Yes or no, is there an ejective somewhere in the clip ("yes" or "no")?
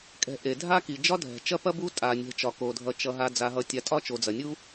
yes